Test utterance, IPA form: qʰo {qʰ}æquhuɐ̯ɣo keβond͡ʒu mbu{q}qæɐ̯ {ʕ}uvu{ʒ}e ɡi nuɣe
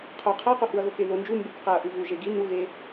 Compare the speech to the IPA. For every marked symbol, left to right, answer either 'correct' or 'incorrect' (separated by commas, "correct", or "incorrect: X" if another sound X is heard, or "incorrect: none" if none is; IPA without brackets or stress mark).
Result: correct, incorrect: k, incorrect: ʔ, correct